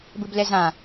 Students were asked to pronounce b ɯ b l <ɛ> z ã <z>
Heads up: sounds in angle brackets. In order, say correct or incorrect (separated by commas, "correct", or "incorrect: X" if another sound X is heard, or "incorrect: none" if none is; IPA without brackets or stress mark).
correct, incorrect: none